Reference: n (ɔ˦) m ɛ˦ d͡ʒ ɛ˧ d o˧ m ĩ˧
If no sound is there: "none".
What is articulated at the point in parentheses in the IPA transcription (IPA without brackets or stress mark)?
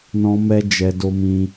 ɔ̃˦